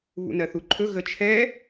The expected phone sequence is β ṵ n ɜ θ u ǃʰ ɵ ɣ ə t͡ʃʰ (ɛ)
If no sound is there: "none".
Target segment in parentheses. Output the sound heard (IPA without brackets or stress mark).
ɛ